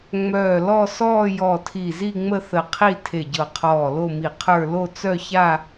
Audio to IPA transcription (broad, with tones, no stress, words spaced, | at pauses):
ŋ͡mœː˧˩lɔ˥˧ sɔː˥˧jɔ˧˩tʰi˧˩zi˥˧ ŋ͡mə˥˧θə˧˩ qʰi˥˧tʰe˧˩ɟɤ˧˩qʰɔː˧˩ lo˥˧mi˧˩qʰə˞˥˧ lo˥˧t͡sœ˥˧ça˥˧